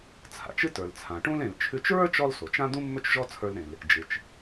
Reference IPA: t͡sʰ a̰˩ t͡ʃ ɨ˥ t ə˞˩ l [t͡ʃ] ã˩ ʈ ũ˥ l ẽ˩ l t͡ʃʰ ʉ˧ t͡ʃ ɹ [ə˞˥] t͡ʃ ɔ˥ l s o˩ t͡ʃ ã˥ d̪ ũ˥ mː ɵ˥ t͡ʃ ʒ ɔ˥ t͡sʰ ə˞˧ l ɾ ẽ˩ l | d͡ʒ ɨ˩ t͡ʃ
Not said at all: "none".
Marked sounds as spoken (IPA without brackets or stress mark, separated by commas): t͡sʰ, ə˞˥